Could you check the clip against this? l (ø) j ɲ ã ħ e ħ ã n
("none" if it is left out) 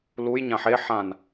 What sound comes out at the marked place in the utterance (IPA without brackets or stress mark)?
u